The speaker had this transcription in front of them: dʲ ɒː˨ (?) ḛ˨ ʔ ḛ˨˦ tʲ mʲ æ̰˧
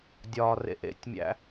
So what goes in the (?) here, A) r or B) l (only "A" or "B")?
A